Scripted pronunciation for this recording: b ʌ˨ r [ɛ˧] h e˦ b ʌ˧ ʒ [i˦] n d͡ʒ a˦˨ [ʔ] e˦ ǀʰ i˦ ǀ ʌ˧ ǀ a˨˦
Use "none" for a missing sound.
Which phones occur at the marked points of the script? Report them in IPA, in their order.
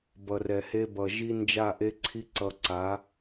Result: ɛ˨, i˦, ʔ

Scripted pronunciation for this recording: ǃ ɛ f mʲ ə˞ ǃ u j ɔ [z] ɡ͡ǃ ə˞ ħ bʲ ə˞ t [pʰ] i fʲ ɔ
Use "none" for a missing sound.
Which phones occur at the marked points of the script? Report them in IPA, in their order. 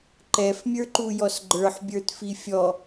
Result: s, f

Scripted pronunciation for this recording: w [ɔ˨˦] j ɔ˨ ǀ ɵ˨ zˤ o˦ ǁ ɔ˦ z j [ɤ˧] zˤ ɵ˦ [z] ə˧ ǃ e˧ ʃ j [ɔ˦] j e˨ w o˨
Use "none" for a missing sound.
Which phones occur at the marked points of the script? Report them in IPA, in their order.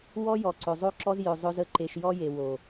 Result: ɔ˦, ɵ˧, z, ɔ˦

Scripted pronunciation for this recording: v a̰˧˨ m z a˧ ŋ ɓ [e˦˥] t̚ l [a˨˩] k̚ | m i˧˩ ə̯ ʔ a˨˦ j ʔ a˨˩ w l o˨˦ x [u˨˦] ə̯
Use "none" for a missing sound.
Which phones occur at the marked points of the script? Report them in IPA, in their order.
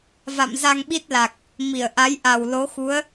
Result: i˦˥, a˨˩, u˨˦

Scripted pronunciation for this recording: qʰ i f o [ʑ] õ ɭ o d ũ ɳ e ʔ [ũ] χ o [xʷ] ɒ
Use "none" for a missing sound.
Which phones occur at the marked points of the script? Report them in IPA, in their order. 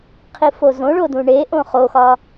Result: z, õ, x

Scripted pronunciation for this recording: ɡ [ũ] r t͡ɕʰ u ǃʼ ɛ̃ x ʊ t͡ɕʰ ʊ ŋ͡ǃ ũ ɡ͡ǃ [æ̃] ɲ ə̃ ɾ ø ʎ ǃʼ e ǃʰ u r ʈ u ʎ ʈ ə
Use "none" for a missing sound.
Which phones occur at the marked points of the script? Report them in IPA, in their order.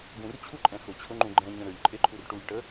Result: ũ, ɛ̃

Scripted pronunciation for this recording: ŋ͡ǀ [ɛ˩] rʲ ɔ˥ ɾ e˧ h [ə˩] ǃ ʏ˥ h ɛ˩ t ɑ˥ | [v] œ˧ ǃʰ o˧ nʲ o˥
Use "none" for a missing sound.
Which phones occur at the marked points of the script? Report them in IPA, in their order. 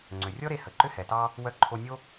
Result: ʏ˩, ə˩, w

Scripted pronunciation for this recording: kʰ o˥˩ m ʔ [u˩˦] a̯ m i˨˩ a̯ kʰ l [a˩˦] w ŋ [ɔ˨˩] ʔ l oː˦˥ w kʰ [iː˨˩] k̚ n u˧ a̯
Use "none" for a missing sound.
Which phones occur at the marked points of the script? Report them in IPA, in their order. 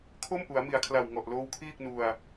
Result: u˩˦, a˨˩, ɔ˨˩, iː˥˩

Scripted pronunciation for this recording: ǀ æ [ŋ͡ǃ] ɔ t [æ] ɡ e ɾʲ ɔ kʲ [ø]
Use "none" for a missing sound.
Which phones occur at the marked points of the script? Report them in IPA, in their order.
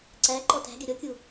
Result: ǃ, æ̤, u

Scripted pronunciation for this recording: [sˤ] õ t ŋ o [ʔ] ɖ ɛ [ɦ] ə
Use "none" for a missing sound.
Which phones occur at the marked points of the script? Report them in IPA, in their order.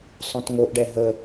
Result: sˤ, ʔ, ɦ

